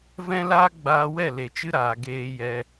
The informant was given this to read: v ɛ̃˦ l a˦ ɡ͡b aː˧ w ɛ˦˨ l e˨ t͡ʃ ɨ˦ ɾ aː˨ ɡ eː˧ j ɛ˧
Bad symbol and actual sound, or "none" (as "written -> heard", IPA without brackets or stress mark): a˦ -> aː˦